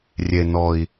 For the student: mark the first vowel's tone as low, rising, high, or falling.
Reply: low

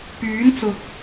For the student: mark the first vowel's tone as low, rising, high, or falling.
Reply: rising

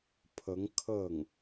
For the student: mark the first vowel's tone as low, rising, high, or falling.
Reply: rising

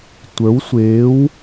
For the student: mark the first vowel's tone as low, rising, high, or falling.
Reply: rising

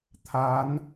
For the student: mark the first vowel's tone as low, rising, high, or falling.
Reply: rising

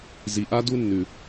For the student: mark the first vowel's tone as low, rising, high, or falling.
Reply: low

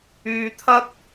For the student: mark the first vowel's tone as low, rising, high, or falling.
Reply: low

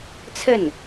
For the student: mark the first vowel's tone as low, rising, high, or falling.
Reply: falling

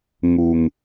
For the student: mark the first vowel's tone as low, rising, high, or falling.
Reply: low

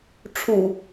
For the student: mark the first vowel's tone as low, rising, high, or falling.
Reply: low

